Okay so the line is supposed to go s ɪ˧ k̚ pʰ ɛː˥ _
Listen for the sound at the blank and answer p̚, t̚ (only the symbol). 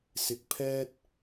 t̚